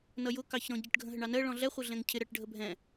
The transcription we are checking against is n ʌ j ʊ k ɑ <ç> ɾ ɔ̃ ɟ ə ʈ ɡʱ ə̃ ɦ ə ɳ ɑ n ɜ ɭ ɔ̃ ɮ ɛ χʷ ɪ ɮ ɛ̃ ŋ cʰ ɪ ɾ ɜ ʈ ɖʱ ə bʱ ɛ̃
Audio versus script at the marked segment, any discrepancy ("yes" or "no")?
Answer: no